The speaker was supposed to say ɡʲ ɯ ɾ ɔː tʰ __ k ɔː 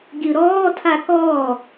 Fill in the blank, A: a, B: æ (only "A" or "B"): A